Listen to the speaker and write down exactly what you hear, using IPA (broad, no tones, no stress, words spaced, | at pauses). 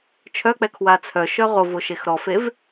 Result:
t͡ʃʰœk͡pɛ kʰwat͡sʰœ ʃœʁo voʃexɾɔfev